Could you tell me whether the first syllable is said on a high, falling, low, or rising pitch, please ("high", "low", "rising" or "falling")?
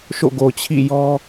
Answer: falling